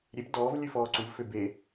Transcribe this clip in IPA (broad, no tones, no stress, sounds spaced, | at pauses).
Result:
ɾʲ e p d ɔː v lʲ ʉ f ɔː ǀ u v f ø b e